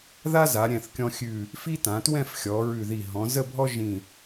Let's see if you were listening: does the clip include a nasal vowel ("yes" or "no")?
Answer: yes